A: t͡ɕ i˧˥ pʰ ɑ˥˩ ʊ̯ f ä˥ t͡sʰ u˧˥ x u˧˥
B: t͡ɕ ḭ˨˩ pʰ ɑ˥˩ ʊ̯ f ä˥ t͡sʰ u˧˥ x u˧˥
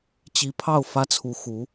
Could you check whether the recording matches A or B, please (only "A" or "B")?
A